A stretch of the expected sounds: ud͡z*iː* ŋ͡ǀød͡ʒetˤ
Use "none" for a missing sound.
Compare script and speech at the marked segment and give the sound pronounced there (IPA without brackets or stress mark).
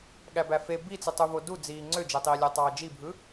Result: iː